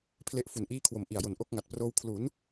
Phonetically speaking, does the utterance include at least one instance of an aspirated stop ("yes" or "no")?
yes